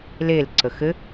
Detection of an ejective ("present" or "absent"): absent